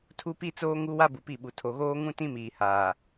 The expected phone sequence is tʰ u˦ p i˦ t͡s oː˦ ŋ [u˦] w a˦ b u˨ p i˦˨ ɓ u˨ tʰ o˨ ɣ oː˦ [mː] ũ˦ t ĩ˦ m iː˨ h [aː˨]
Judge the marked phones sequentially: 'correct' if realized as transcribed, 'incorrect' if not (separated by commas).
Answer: correct, incorrect, correct